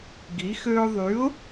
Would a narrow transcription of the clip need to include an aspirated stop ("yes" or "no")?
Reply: no